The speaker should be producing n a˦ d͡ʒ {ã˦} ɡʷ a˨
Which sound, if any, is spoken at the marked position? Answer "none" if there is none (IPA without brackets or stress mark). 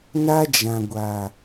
ã˨